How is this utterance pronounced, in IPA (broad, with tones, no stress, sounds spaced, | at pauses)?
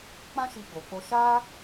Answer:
k͡p ã˦ ʃ i˧ ɡ͡b o˨ k͡p o˧ ʃ a˦